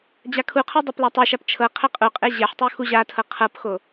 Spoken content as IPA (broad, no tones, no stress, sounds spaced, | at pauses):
d͡ʑ a kʰ u qʰ ɤ dˤ ɤ p l a tˤ ɛ ʃ a p t͡ʃʰ ɤ qʰ ɛ qʼ u qʼ e ʑ ɛ ħ tˤ u x u ʑ a tʰ ɤ qʰ ɤ p x o